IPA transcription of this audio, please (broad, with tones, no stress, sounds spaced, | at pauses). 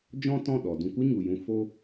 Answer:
d͡ʒ ɔ̃˦ t ɔ̃˦˨ ɗ ɔ˨ d ũ˧ kʷ ɨ˦ ɲ u˨ j ũ˧ f o˦